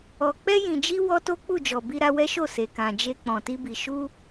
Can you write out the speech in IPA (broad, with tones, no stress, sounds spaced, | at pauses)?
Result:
ɔ˨ k͡p ɛ˧ j ĩ˨ d͡ʒ i˧ w ɔ˧ t o˦ k͡p u˦˨ d͡ʒ ɔ˨ b i˧ ɾ a˧ w ɛ˦ ʃ o˦˨ s e˨ k ã˨ d͡ʒ e˧ k͡p ɔ̃˨ t i˧ b i˨ ʃ u˧